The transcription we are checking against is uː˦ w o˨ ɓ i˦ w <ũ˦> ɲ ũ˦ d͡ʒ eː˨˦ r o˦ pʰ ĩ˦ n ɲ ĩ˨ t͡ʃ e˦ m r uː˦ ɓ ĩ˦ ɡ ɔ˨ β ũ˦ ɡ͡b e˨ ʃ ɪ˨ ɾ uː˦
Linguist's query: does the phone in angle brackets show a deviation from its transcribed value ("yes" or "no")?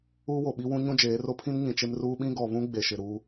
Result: no